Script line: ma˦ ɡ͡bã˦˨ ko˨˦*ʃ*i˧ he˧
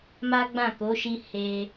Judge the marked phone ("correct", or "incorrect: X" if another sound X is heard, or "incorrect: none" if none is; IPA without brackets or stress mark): correct